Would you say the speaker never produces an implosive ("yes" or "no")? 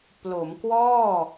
yes